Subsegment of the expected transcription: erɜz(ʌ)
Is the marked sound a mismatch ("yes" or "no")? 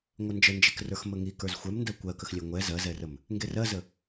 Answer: yes